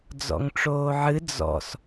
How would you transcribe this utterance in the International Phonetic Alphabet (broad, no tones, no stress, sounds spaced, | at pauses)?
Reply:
d͡z ɔ̰ ŋ ʈ͡ʂ oː ʕ ɨ d͡z ɔ̰ s